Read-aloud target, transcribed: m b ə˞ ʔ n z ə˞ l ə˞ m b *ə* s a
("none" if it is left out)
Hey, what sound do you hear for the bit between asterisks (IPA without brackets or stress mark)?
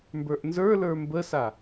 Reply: ə